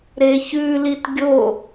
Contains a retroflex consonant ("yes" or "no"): no